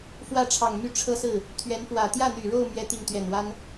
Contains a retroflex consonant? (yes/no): yes